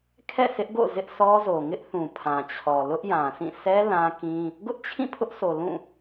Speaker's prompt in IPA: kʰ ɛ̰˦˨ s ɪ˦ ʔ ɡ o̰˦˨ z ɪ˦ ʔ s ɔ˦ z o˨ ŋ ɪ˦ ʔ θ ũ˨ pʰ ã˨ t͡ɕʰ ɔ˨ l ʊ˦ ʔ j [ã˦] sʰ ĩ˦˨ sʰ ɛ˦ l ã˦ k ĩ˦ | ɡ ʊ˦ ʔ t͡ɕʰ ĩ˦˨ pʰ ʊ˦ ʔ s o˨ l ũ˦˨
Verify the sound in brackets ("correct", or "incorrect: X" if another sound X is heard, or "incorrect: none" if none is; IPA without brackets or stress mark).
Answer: incorrect: ã˨